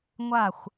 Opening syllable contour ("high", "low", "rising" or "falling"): falling